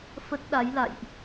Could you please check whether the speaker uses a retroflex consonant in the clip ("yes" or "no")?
no